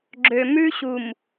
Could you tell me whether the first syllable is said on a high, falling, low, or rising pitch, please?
low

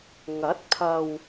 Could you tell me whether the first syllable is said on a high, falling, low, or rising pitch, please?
rising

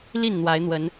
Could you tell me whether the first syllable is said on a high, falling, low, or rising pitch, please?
falling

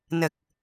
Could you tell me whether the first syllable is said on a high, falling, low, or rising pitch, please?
low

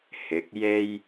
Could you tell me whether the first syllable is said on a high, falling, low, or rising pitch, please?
rising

